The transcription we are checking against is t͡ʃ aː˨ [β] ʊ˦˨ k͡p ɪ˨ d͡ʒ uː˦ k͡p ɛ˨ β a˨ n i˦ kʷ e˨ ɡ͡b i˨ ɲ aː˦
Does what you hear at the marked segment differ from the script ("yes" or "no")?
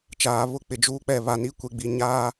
no